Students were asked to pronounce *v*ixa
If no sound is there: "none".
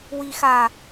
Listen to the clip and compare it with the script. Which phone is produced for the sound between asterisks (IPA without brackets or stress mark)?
w